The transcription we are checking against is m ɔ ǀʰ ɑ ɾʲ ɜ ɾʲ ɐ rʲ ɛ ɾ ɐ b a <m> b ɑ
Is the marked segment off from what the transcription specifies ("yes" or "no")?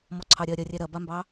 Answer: no